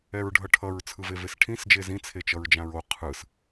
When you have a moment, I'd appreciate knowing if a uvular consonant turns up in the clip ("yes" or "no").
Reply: yes